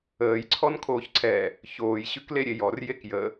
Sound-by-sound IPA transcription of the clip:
əː j ǀʰ ɔ n kʰ oː ç ǀʰ ɛ | ç oː j ɕ ʉ k l e ɾʲ e j ɔ r j e k j ə

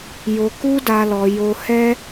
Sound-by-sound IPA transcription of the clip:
j o˧ k u˦ d a˦ l ɔ˧ j o˧ h ɛ˦

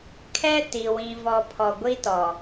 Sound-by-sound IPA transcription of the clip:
kʰ ɛ˦ t i˨ w ĩ˨ v ɔ˨ pʰ ɔ˨ ɡʷ i˦ t ɔ˨

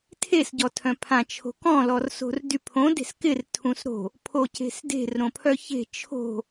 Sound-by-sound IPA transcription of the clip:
tʰ e s ɟ ɔ tʰ œ̃ pʰ ã t͡ʃʰ o̤ k ɔ̃ l ɔ r s o̤ r d y pʰ õ d e̤ s k ɪ r tʰ ũ s ɾ o̤ | pʰ o c e̤ s d e̤ r ɾ õ pʰ œ ç e̤ t͡ʃʰ o̤

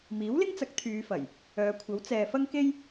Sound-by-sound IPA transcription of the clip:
m iː˨˥ w l ɪ˥ ŋ t͡s ɐ˨˥ k̚ t̪ʰ yː˨˧ f ɐ˨˩ j | œː˨˧ kʷʰ ɐ˨˥ w t͡s ɛː˨ f ɐ˥ ŋ k e˥ j

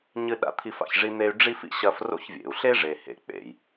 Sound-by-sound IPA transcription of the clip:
ɲ ɨ˦ ɗ a̰˦ t̪ʰ i˦ f a̰˨ ç ʐ i˥ n̪ e˦ y̯ ɖ͡ʐ i˥ f ḭ˦ ɕ ɐ˦ f r o̰˦ ç vʲ ḛ˩ u̯ ɬ e˥ ʐ e˨ h ḛ˨ k͡p ḛ˩ j

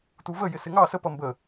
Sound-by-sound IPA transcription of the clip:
t u v ə j ɪ s ɪ ŋ ɑ s ə p ʌ m b ə

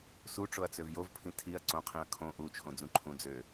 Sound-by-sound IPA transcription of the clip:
s u ʈ͡ʂ o ɐ̯ t͡s ø v j o v pʰ ĩ tʰ i ɐ̯ ǀ õ qʰ ĩ ɐ̯ kʰ õ ʔ u t͡ʃʰ õ d͡z ũ ǃʰ ũ d͡z ø

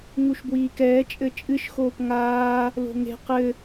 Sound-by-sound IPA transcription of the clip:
ŋ u ʃ b w iː k ɛː t͡ʃʼ ɘ t͡ʃʼ ɨ ʃ x oː p ŋ aː | l o̤ ŋ e̤ q ɘ

